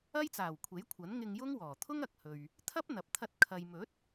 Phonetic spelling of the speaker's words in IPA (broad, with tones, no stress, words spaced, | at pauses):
ɐ˥jt͡saː˨˩wkʷʰe˨˥jkʷʰɐ˨˥n ŋɪ˧ŋjʊ˥ŋ wɔː˨˩ t̪ʰʊ˥ŋɐ˨k̚ hɵ˨ɥ | t̪ʰɐ˥p̚ n̪ɐ˨p̚t̪ʰɐ˧t̚ kʰɐ˨jmɵ˨˥t̚